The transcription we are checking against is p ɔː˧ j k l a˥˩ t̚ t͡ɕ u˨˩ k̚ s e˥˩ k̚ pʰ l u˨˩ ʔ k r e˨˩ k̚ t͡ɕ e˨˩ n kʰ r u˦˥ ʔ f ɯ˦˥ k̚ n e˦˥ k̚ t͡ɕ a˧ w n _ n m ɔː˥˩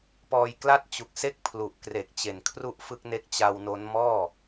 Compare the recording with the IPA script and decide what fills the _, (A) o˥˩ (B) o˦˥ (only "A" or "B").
B